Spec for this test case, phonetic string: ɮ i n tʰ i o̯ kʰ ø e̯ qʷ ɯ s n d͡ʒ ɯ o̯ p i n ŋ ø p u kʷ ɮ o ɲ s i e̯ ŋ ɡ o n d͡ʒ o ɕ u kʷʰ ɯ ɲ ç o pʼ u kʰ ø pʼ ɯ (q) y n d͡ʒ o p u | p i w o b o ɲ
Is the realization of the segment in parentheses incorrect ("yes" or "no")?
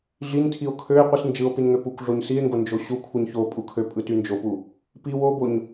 yes